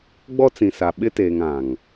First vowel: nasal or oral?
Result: oral